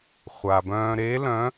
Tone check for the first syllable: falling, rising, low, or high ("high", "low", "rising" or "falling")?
low